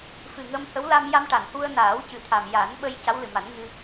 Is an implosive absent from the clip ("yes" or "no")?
no